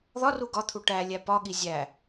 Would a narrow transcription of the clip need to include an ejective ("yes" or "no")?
no